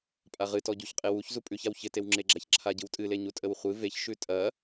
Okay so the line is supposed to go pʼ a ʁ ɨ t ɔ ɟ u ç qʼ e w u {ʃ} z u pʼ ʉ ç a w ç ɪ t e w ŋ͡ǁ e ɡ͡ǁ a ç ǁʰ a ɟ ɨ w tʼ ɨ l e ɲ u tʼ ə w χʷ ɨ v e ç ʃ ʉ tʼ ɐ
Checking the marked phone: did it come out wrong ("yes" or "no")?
yes